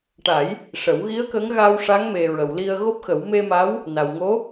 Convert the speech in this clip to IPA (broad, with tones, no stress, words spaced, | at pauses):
ʈa˨˩˦j | ʂə˨˩˦w ɣi˧˥ə̯kə˧˥ŋ ɣaː˧wʂa˧˥ŋme˨˩ ɹə˨˩˨wli˧ə̯ ɣo˦˥p̚xə˨˩˦w me˧ma˧˥w | na˨˩w ŋo˧˥